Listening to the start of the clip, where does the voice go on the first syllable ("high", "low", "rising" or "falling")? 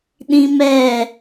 high